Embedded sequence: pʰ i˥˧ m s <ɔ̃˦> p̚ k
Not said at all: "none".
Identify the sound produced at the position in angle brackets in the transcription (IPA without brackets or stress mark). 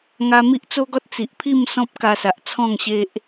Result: ɔ̃˦